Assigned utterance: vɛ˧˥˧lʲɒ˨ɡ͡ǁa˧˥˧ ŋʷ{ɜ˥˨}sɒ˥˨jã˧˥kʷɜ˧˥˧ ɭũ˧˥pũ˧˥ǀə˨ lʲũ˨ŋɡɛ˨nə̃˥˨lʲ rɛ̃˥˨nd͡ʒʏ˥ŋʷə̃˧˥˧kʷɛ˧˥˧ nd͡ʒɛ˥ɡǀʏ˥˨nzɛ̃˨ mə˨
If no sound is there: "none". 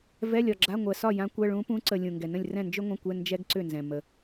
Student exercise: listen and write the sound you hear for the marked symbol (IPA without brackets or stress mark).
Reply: ɜ˨